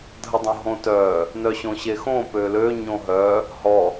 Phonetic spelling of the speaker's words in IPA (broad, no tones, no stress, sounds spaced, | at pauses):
dʱ ə dˤ õ ɦ õ t œ | n œ ɕ õ ɕ e x õ p ø l ø ɲ õ ɦ œ | h ɔ